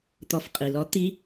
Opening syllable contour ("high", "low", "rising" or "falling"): rising